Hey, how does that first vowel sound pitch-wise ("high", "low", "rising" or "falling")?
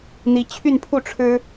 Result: rising